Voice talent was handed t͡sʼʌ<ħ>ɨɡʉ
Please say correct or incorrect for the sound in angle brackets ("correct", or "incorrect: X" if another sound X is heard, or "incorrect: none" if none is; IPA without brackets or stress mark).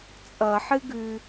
correct